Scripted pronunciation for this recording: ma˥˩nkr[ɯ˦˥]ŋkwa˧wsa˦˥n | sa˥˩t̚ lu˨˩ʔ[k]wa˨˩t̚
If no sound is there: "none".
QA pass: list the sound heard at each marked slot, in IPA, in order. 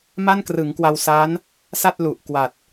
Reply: ɯ˩˦, k

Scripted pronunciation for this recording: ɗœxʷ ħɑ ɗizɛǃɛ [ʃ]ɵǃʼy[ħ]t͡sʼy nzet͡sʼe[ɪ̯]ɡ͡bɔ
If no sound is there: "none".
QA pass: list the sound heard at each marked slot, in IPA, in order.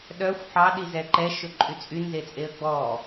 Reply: ʃ, none, ə̯

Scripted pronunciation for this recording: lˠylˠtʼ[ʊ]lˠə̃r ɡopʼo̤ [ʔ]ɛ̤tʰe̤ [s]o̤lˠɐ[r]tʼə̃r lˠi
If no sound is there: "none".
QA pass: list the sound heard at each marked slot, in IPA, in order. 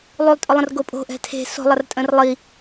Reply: ʊ, ʔ, s, r

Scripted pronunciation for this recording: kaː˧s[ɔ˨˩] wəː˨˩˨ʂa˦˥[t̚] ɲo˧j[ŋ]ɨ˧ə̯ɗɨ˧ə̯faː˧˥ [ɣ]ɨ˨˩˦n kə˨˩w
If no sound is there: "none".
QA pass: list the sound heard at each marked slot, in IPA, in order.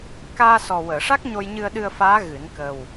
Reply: ɔ˨˩, k̚, ɲ, ɣ

